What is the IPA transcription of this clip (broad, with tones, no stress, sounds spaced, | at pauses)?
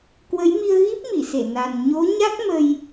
k w ə˨˦ j m i˧ ə̯ ɣ i˦˥ p̚ m i˧˩ s e˧˩ n a˨˩ n ɲ o˨˦ ɲ a˦˥ k̚ m ə˧ j